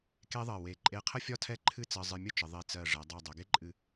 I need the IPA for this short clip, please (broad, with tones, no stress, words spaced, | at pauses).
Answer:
ke˥ðˤɜ˧˩we˧˩ ǃʼe˧qʰə˥ fʲɒ˥tʰɛ˥˧ǃʰɨ˥˧ t͡sɜ˧zˤɨ˧mʲə˥t͡ʃə˩˧ ðˤe˧˩t͡sɜ˧˩ ʐɛ˩˧dˤɛ˧˩ dˤɛ˩˧ɡe˥ǃʼɨ˧˩